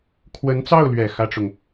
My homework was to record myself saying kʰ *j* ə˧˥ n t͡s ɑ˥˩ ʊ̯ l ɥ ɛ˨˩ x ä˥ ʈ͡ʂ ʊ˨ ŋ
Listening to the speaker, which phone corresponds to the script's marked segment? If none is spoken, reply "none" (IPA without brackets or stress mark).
w